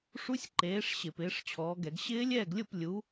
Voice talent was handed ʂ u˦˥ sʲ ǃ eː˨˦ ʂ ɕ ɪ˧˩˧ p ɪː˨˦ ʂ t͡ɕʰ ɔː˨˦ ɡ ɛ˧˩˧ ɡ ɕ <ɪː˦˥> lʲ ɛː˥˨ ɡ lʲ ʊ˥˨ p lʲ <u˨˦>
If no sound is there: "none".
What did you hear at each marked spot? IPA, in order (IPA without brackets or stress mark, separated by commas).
ɪː˦˥, u˨˦